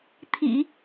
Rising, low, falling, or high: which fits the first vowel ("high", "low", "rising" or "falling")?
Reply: low